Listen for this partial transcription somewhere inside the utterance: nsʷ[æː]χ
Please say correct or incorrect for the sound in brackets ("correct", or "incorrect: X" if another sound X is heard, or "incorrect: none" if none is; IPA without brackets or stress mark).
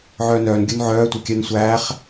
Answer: correct